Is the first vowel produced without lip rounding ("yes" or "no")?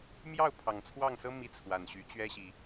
yes